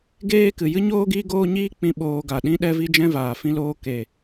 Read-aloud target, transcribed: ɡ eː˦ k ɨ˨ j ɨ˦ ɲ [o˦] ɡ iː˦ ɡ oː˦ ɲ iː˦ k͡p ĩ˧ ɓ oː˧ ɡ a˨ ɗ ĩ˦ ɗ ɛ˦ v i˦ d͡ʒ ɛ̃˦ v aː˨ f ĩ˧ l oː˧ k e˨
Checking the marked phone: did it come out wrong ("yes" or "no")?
yes